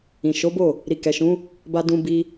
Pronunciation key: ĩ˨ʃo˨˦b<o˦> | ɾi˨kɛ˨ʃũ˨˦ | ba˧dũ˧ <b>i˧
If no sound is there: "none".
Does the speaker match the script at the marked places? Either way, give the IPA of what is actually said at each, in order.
o˦˨, b

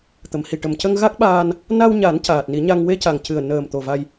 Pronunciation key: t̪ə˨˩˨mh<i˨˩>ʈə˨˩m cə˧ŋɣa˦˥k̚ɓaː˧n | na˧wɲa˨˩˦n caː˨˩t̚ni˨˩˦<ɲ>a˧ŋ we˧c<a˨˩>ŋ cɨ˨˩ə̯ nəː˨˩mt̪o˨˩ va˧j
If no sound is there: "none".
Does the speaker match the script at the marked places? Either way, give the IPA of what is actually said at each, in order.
i˨˩, ɲ, a˨˩

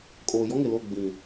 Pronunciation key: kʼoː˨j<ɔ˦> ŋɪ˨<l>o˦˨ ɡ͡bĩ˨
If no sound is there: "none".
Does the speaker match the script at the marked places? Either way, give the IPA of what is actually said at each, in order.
ɔ˦, l

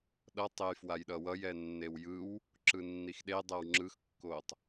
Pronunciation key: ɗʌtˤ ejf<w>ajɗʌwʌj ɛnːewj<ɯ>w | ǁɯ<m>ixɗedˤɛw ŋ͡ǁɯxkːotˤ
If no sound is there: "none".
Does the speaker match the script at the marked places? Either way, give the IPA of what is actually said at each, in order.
w, ɯ, nː

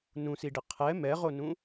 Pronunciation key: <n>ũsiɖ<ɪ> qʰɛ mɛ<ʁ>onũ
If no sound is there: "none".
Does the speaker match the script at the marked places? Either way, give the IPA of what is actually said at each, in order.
n, ɪ, ʁ

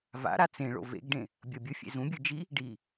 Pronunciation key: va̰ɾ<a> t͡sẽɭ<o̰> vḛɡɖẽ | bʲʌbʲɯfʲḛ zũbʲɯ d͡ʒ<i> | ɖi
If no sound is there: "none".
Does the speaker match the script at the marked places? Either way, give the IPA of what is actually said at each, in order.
a, o̰, i

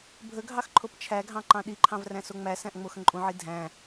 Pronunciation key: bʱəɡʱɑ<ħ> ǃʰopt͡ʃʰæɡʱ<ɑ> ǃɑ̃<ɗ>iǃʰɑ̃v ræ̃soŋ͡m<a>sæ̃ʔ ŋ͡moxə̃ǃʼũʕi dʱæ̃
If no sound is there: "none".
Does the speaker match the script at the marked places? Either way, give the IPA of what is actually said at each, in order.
x, ɑ̃, ɗ, æ

